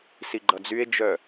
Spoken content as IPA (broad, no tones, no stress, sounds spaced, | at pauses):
s i ɡ͡ǃ ʌ d͡z y e̯ d͡ʒ œ